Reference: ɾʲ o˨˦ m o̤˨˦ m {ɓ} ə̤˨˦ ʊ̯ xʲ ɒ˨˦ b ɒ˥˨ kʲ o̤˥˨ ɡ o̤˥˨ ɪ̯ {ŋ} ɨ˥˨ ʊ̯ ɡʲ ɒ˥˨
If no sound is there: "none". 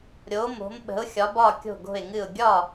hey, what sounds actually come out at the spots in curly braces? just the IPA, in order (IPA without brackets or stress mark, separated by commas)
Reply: ɓ, ŋ